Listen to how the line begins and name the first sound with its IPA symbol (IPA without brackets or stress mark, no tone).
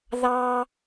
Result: ð